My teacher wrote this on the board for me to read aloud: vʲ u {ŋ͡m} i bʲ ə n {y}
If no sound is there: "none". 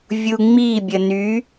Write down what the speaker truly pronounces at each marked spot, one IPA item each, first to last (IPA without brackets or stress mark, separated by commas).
ŋ͡m, y